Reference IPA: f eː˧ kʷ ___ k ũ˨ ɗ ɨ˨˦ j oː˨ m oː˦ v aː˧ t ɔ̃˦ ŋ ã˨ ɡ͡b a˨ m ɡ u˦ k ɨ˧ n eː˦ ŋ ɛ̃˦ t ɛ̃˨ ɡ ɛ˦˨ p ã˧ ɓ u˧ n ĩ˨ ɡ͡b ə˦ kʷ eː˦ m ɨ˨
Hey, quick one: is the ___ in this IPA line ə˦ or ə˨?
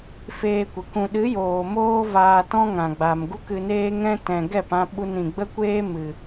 ə˨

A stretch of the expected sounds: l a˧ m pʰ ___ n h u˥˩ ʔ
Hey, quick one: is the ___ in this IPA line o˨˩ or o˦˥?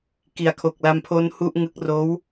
o˦˥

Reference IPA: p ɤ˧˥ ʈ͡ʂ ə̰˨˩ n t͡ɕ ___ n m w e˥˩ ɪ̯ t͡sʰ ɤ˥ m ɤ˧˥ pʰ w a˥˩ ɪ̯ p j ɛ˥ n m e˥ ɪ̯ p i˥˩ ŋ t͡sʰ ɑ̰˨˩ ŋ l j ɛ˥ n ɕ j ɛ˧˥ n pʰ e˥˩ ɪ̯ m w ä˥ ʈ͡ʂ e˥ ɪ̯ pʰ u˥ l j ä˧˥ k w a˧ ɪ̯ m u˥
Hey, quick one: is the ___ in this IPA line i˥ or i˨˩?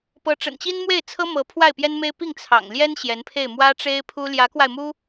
i˥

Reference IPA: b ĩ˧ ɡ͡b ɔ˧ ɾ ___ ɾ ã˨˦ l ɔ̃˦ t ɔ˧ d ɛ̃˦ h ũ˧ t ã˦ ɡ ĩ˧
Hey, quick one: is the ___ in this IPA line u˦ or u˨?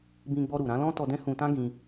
u˨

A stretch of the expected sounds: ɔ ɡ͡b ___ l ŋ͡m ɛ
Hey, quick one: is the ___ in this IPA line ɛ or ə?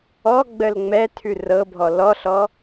ə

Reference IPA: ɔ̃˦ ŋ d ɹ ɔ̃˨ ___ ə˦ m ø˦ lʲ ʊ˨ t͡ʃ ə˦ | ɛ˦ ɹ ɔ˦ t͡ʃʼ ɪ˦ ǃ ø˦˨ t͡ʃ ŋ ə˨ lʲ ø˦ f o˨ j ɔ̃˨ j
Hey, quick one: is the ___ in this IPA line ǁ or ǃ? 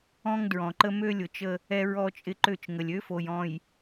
ǃ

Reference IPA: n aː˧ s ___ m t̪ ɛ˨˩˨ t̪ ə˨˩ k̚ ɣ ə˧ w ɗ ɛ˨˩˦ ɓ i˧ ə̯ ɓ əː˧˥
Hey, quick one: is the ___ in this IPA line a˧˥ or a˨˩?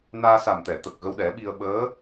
a˨˩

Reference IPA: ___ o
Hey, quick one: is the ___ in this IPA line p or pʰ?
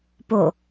p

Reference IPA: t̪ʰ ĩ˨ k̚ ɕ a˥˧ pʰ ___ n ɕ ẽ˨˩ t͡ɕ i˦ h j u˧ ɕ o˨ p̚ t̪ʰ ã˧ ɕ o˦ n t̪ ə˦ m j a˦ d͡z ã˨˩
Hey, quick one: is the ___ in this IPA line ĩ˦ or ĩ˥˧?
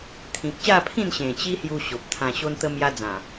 ĩ˥˧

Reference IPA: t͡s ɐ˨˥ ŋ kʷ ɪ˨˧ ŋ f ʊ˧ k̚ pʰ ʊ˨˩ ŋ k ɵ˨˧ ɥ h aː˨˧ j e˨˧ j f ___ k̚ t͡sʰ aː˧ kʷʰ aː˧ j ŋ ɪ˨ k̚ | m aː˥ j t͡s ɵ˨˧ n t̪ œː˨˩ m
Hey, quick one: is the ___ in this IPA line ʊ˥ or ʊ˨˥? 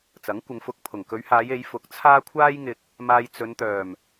ʊ˨˥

